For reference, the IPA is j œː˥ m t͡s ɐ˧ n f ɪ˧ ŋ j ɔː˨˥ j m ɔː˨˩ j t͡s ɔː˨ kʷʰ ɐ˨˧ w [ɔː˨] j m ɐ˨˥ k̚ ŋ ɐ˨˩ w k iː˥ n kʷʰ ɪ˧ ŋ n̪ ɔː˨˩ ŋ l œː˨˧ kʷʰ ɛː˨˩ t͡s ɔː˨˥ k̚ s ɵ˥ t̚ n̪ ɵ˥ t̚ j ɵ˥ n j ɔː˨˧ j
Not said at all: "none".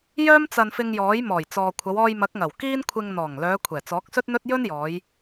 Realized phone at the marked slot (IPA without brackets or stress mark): ɔː˧